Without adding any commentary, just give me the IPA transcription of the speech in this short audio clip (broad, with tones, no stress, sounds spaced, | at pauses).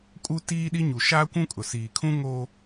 kʼ u˦ t iː˦ ɗ i˦ ɲ u˨ ʃ aː˦ kʷ ũ˦ kʼ ʊ˨ s iː˨ kʰ ũ˦ ŋ o˦